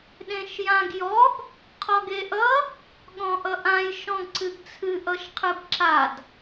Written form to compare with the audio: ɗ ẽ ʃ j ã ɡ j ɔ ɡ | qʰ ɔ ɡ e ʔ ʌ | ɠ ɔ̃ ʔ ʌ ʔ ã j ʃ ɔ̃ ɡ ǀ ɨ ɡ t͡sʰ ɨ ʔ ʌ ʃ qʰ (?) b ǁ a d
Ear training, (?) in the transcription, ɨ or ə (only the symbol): ɨ